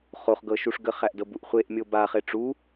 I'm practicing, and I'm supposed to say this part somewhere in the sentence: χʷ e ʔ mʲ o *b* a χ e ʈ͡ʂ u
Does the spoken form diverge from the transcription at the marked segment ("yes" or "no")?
no